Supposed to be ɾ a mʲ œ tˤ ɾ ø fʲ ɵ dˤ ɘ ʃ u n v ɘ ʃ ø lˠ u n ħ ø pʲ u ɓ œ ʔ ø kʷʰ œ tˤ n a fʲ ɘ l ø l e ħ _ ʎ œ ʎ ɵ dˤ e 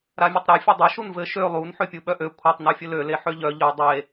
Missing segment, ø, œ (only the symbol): ø